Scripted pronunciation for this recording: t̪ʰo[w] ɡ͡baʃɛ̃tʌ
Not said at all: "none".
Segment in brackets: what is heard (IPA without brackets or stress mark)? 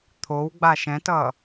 w